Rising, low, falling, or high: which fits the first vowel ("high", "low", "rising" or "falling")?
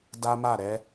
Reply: high